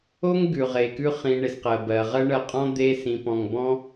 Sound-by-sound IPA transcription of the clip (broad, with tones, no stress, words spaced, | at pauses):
o˥ŋɡʉ˩ʁe˩ kʉ˥χĩ˧ ɳe˩sqɜ˩bɜ˩ʁɜ˥ ɳɜ˧qʼɔ̃˥ d̪e˥sĩ˧pɔ̃˧ŋ bɔ̃˥